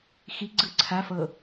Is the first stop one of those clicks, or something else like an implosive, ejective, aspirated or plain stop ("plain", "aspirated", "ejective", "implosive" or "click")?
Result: click